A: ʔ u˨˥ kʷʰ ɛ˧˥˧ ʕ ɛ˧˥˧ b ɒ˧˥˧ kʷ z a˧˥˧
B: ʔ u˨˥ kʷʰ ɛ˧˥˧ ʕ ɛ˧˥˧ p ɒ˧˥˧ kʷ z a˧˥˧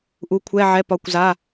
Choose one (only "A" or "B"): B